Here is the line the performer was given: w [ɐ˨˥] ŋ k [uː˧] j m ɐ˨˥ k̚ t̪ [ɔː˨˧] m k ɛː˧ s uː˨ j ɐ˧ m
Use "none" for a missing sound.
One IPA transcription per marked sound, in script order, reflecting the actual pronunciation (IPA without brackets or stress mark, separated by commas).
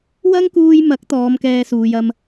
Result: ɐ˥, uː˧, ɔː˨˧